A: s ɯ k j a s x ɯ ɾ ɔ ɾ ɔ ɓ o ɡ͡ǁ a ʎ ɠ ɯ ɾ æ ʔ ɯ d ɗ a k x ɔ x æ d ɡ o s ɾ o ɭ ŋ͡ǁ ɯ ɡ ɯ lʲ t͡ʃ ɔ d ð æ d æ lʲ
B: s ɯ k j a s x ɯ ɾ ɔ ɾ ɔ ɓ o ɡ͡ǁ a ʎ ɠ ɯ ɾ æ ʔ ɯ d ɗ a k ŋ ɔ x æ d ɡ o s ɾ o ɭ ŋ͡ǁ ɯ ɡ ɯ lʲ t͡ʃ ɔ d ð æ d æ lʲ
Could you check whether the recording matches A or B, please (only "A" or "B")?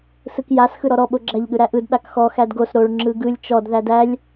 A